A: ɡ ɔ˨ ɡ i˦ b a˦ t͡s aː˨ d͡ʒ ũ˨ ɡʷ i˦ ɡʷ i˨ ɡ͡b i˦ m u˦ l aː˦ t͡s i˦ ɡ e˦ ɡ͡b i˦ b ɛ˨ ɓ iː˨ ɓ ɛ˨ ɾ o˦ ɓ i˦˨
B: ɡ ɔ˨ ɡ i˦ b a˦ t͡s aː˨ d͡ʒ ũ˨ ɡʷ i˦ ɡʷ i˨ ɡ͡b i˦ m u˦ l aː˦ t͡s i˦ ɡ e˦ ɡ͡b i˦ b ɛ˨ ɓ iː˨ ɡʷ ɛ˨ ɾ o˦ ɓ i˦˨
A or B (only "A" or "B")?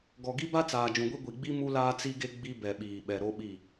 A